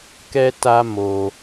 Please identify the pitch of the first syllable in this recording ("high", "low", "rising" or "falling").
high